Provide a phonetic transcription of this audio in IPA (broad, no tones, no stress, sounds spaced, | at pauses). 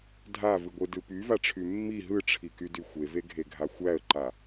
dʱ a v ɯ ɡʷ ɯ d ɯ p y v a ʈ͡ʂʰ y mː i ɦ ɯ ʈ͡ʂʰ i k y d y xʷ e v e ɡʱ e ɡʱ a xʷ æ ə̯ ǃ a